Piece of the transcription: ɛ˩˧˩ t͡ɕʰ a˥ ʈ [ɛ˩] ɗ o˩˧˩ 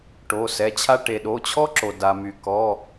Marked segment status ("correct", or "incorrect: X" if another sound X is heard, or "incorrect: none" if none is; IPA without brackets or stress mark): incorrect: e˩